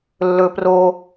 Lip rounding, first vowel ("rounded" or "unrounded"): rounded